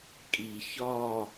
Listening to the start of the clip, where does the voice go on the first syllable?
low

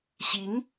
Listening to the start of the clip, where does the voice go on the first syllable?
rising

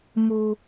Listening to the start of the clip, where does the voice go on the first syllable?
high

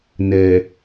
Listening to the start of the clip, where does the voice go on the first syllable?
low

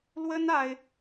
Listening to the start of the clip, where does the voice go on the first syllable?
high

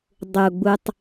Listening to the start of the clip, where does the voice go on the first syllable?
low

